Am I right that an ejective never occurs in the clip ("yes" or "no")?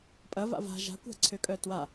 no